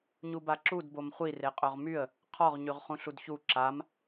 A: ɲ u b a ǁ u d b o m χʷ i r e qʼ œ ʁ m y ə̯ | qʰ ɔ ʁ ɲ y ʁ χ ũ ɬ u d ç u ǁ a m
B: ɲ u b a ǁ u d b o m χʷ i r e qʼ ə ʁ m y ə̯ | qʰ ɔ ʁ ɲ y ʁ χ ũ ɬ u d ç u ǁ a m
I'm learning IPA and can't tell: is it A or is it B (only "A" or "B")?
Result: A